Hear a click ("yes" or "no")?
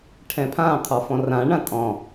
no